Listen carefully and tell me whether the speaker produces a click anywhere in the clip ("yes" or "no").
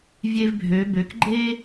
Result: yes